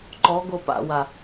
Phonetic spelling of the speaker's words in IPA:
ǃ ɔ ɡ o p a̰ w a

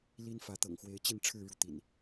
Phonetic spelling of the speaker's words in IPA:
l i˦ n f ä˨˦ t̪ ɤ̰˨˩ ŋ x w e˨˦ ɪ̯ t͡ɕ i˥˨ n ʈ͡ʂʰ ɻ̩˥˨ ɻ u˥˨ t̪ ḭ˨˩ n

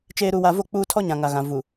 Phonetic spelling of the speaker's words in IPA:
t͡ʃ eː˨ ɾ u˨ w a˨ v o˦˨ k͡p uː˦ tʰ ɔ˦ ɲ ã˨ ŋ a˨ ɣ ã˨ v u˨

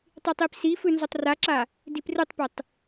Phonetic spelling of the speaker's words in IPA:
tˤ i tˤ i p s i f ɯ n z o tˤ r a ǁ a | d i p r ɯ tˤ p e tˤ

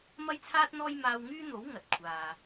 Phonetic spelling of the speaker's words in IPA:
m ɐ˥ j t͡sʰ aː˥ t̚ n̪ ɔː˥ j m aː˧ w ŋ yː˥ n̪ o˨˥ w ŋ ɐ˨˥ t̚ kʷʰ aː˨

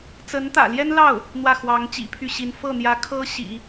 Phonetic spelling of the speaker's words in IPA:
t͡s ə˧˥ n t̪ ä̰˨˩ l j ɛ˥ n l ɑ˥˩ ʊ̯ | n̪ w ä˥˩ x w ɑ˧˥ ŋ t͡ɕ ḭ˨˩ pʰ y˥˩ ɕ i˧˥ n f ɤ˥˩ n̪ j ä˧˥ kʰ ɤ˥ ɕ ḭ˨˩˦

